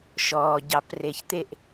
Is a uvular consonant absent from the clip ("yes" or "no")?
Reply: yes